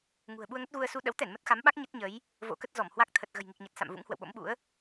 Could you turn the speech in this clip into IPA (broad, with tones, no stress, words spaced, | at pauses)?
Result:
ŋṳ˨˩ə̯ɓu˧ə̯ŋə˦˥t̚ɣu˧ə̯ su˧ ɗə̰˧˥wt̪ɛ˧˩n mə˦˥t̚xa˨˦mɓa˦˥k̚ ɲə˦˥t̚ɲə˨˦j | vo̰˧˥kə˦˥t̚zɔ˧˩mhwa˦˥k̚ t̪ʰə˨˩t̚ɣə̤˨˩jŋi˨˩k̚ɲə˨˩t̚ sa̰˧˨m vṵ˧˥ŋhwə̰˧˨wɓo̰˧˥mɓṵ˧˥ə̯